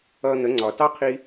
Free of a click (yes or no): no